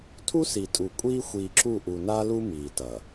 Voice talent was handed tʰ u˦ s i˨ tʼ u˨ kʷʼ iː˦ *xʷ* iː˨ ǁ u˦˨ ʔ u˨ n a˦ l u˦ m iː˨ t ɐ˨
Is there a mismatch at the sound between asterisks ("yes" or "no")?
no